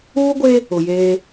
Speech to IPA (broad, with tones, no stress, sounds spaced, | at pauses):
uː˦ ɡʷ e˦ | ʊ˨ j eː˦